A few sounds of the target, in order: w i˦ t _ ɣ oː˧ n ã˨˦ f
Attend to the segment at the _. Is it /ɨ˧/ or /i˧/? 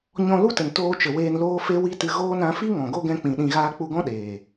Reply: ɨ˧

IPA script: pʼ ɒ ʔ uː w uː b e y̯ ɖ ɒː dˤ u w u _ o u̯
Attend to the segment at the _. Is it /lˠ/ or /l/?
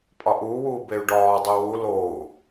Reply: l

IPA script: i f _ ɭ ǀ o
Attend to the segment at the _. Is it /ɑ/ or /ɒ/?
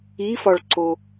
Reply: ɒ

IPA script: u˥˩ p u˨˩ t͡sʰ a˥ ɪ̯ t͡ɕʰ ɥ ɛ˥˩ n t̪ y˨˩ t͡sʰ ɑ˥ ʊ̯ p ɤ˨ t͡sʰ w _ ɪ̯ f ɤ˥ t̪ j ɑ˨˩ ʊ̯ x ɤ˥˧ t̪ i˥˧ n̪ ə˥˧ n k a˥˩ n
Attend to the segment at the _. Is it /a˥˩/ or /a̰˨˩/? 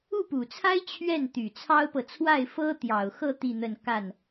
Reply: a˥˩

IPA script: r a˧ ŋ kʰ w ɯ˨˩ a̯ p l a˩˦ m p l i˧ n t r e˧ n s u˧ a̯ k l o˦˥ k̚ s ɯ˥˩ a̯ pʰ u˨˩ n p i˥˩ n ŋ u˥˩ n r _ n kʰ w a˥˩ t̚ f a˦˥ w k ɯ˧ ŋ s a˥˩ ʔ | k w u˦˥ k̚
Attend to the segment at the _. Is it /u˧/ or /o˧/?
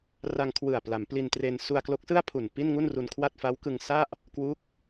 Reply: u˧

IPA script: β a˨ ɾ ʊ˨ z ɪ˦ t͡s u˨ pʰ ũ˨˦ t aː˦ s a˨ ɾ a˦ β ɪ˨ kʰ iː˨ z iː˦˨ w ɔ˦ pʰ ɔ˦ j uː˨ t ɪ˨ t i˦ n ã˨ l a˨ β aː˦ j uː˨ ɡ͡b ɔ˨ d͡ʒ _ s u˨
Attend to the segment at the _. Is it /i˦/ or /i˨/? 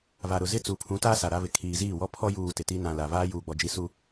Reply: i˨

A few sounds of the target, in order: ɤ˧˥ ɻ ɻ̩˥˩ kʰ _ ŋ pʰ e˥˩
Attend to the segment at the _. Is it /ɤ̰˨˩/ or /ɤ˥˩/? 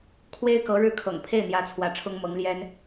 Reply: ɤ̰˨˩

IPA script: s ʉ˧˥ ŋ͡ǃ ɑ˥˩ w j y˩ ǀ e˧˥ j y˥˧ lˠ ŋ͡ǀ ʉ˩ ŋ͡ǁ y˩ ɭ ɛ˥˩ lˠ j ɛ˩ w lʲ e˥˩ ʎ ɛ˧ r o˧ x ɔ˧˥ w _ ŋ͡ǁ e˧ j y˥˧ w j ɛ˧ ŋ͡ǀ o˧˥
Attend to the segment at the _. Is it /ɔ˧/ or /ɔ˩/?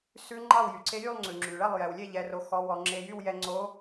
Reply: ɔ˧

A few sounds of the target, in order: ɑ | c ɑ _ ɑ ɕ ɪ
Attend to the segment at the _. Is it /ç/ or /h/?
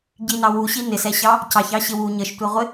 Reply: ç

